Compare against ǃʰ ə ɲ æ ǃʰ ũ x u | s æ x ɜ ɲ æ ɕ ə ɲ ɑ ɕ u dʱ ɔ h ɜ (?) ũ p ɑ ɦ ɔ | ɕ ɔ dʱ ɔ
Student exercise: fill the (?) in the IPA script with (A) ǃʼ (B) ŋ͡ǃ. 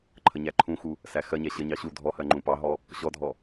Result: B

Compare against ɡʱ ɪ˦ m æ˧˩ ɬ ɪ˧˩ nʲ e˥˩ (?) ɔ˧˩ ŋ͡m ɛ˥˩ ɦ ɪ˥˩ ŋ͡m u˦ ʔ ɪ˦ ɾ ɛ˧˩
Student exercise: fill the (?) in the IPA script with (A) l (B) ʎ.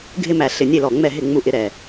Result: A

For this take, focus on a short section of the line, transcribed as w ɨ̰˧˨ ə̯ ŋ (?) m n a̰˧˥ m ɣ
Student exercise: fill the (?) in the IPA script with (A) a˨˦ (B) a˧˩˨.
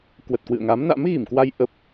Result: A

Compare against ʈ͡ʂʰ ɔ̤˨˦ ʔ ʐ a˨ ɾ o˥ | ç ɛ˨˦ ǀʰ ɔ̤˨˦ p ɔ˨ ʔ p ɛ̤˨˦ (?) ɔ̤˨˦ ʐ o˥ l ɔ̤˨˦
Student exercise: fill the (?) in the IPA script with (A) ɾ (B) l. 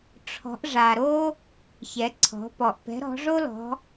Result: A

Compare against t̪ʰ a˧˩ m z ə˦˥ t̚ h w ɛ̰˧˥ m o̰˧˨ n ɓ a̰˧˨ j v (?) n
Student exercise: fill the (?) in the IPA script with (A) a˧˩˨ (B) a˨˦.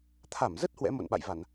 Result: A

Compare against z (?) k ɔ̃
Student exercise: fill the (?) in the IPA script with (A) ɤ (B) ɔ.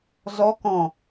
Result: B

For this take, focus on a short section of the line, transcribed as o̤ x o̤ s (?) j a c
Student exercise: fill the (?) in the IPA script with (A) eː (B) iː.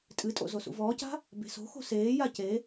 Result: A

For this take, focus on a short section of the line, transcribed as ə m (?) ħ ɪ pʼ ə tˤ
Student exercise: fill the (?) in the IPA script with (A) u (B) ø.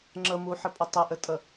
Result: A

